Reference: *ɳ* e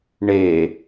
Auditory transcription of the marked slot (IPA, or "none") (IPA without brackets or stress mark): ɳ